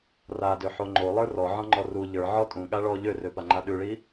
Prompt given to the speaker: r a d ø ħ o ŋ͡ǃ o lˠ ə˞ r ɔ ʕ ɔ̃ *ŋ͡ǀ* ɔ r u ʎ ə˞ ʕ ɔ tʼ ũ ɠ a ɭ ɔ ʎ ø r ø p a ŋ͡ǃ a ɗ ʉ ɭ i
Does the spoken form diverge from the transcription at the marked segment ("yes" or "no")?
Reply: yes